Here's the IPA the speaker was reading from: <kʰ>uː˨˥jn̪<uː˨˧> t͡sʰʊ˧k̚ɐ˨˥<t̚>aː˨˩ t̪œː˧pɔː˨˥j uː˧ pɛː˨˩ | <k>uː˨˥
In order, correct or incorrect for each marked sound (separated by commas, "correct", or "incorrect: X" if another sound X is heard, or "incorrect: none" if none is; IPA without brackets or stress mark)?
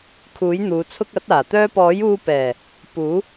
correct, correct, correct, incorrect: p